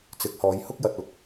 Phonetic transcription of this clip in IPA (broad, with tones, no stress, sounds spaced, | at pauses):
t͡s ɪ˨˥ k̚ h ɔː˨˧ j h ʊ˥ k̚ j ɐ˨ t̚ ʊ˨˥ k̚